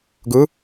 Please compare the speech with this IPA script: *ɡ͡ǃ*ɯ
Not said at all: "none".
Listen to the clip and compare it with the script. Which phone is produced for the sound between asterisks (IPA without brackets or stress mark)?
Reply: ɡ